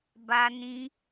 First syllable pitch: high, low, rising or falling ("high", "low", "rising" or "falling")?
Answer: high